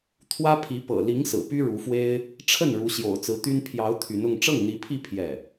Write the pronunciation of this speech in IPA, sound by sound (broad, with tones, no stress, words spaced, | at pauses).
t̪ʰwä˥pʰi˧˥ pɤ̰˨˩li˧˥ŋsɹ̩˨˩ py˥ɻu˧˥fwe˥ɪ̯ | ʈ͡ʂʰə˥˩n ɻu˧˥ɕjo̰˨˩ʊ̯t͡sɹ̩˧˥t̪y˥n pʰjɑ˧˥ʊ̯ t̪ʰy˧˥nʊ˥˧ŋ ʈ͡ʂɤ˥˩ŋn̪i˧˥pʰi˥˧ pʰjɛ˥˩